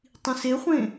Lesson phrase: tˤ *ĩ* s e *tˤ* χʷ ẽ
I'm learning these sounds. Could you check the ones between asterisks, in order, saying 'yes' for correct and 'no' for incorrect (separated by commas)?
yes, no